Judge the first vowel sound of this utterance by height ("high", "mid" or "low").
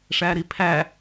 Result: low